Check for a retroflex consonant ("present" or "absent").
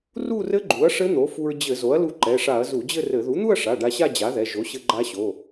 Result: present